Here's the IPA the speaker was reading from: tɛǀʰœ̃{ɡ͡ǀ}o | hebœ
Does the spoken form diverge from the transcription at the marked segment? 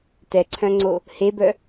yes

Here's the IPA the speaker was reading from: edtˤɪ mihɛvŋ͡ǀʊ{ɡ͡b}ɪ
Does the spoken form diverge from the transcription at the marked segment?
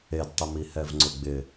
no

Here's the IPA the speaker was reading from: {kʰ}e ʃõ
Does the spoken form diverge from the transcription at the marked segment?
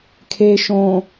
no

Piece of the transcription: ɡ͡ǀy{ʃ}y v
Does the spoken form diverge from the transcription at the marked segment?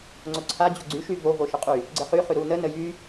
no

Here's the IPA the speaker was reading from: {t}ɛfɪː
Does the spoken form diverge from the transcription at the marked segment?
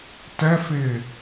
no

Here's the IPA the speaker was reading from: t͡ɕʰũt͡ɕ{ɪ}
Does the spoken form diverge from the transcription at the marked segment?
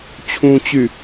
yes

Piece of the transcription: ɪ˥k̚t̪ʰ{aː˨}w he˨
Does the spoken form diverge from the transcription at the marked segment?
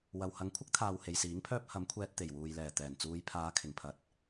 no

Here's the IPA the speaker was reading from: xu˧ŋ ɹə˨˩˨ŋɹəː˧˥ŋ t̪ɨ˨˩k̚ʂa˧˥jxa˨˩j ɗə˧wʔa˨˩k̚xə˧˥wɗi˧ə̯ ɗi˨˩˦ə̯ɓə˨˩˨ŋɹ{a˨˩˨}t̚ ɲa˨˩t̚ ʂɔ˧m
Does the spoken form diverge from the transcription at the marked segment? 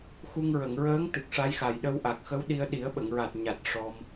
yes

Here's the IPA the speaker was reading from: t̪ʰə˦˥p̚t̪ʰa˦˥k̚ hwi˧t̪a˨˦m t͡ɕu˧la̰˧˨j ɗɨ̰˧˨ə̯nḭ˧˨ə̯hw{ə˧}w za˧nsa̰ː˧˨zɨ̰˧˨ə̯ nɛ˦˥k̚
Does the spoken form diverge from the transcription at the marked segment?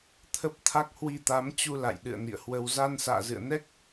no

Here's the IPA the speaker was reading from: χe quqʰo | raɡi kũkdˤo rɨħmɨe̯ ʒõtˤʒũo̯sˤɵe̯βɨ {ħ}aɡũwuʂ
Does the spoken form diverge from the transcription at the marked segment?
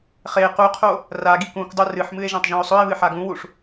no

